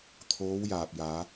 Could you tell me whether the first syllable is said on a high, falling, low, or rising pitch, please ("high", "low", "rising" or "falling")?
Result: rising